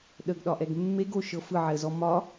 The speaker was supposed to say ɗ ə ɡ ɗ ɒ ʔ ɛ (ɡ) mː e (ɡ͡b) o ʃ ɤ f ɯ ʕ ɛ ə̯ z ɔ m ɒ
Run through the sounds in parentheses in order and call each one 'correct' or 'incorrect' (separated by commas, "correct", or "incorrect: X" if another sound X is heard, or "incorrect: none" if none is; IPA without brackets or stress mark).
correct, incorrect: ɡ